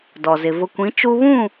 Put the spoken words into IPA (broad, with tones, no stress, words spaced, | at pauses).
dɔ˨zɪ˨ vʊ˨kʷĩ˨˦ t͡ʃu˦ βũ˦˨